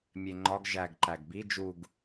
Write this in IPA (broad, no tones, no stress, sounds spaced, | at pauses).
mʲ e ŋ͡ǃ ɒ ɡ ʒ æ ɡ ǃ æ ɡ b i d͡ʒ u ɡ